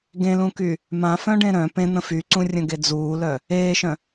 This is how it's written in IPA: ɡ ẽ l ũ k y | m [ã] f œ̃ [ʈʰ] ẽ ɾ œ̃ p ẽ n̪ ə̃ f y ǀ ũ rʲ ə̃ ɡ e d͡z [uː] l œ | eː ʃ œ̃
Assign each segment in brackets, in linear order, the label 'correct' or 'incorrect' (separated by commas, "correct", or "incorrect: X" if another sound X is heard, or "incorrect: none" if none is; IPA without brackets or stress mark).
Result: correct, incorrect: ɖ, correct